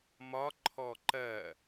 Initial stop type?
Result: click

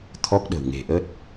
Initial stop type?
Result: aspirated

